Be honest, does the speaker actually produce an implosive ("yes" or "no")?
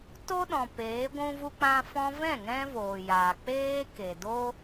yes